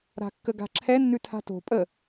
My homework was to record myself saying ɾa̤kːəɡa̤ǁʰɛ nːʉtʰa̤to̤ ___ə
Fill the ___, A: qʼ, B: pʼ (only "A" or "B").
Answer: B